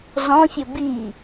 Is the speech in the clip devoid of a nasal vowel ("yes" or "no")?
no